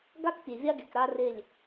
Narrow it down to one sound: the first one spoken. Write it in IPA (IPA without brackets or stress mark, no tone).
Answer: ɡ